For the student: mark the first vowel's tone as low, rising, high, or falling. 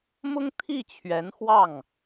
high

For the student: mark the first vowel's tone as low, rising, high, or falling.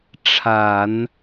low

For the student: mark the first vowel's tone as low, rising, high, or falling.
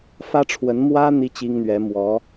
high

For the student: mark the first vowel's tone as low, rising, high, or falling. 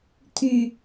low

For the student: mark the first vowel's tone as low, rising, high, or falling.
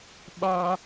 high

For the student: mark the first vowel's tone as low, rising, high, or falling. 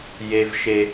high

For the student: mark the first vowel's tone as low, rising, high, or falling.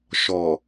low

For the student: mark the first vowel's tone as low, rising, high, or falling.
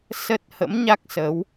low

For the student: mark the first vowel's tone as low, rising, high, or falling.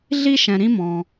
high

